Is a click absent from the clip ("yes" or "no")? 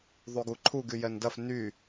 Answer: no